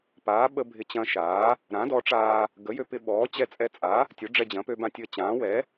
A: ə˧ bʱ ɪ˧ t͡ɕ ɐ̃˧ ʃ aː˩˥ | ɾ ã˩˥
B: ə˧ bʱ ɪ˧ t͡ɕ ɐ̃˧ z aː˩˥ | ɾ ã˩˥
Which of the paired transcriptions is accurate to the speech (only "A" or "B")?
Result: A